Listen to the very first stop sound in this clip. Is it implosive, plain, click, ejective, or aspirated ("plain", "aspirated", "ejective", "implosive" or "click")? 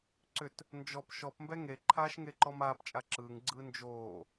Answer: click